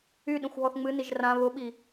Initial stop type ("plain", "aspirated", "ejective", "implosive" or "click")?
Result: implosive